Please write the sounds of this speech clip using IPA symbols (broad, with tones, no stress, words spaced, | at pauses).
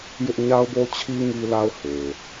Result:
jɪ˦ʔ ɲa˦ʊ̯bo˦t͡ɕʰi˦ ŋi˦la˦ʊ̯ he˨